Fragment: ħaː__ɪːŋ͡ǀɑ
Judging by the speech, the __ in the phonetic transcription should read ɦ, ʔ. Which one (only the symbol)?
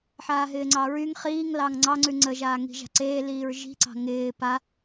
ɦ